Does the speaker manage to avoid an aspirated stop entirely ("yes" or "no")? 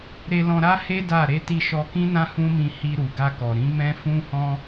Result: yes